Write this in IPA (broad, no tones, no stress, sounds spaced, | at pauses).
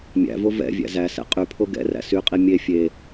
mʲ æ̰ v o v ɛ̰ vʲ æ̰ z æ s ɛ̰ qʼ y pʰ o ɡ ɛ̰ r æ̰ s y qʼ i mʲ e fʲ e